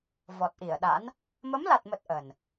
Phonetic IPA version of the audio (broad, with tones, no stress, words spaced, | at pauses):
vɔ˨˩t̚ʔi˧˩ə̯ɗa̰˧˥n | mə˨˦mla˨˩t̚mə˨˩t̚ ʔə˨˩n